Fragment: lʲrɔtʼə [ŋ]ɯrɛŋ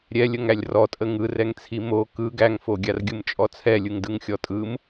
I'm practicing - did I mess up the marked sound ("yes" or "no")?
no